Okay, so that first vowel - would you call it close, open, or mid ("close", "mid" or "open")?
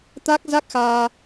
open